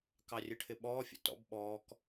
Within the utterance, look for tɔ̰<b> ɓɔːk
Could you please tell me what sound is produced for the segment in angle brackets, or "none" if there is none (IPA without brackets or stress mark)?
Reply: b